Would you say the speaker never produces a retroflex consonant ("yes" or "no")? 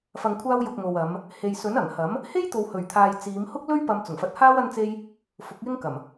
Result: yes